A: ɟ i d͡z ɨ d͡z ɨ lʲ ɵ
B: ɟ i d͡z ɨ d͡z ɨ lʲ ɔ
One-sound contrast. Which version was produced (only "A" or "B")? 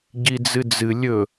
A